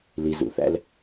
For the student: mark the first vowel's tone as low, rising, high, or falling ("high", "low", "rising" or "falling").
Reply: low